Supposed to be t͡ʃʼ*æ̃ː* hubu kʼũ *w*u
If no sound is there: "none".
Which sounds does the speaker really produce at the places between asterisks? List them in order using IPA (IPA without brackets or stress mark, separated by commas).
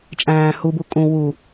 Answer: æ̃ː, w